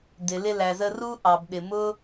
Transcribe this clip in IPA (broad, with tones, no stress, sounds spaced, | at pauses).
d ɪ˩ l ɪ˧ l æ˩ z ə˧ r u˥ ʔ ɑ˩ b ɗ ɪ˩ m ʊ˥